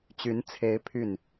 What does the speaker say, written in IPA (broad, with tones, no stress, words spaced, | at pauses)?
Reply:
t͡ɕy˧˥nt͡sʰe˧˥ɪ̯ pʰy˥˩n